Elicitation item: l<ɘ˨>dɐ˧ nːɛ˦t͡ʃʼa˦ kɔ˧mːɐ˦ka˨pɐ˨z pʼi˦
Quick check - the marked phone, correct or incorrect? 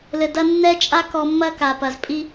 correct